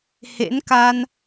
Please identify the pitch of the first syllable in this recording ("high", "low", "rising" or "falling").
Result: rising